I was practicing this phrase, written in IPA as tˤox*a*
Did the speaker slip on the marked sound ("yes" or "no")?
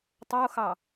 yes